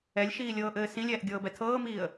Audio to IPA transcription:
ɛ lʲ ʃ iː lʲ ɤː ʔ ɘː s ĩ lʲ ɛː ʔ ɡʲ ɤː b ɛ tʰ ɤː m iː ə̯

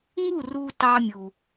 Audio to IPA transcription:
ŋ u˦˨ r u˧ t ɑ˧ mʲ u˨

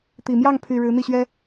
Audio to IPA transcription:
t̪ i˨˩ m j ɑ˥˩ ŋ pʰ y˨˩ ɻ ɻ̩˧˥ n̪ i˥˩ ɕ ɥ ɛ˥

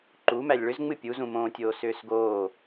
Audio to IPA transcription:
ǃ u m æ lʲ ɭ ʏ z ŋ͡m ɨ pʲ u z ũ m õː tʲ oː s ʏː s ɡ oː

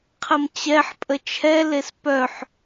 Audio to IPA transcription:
qʰ ə m t͡ɕ ɛ ħ pʼ ə t͡ʃʰ ɛ l e s p œ ħ

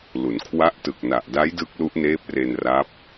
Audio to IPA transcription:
l u˩˦ n kʰ w a˦˥ ʔ t ɯ˨˩ k̚ n a˨˩ ʔ d a˦˥ j d ɯ˦˥ k̚ l u˦˥ ʔ n eː˦˥ p̚ r e˧ n r a˦˥ p̚

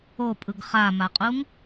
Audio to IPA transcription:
o pʼ ɯ ɡ χ a m a qʼ u ŋ

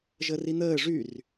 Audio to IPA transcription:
ʒ ə r i n̪ əː ʐ y r

